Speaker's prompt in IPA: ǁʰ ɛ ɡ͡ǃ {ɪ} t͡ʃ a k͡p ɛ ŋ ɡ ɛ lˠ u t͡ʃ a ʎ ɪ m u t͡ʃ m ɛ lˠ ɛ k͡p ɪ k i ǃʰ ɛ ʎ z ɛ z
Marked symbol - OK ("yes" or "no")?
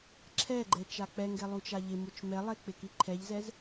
no